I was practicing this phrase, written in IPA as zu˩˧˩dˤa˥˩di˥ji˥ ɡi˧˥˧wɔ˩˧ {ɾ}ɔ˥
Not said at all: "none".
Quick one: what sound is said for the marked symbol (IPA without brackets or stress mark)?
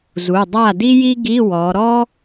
ɾ